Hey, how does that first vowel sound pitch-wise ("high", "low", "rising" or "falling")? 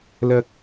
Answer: high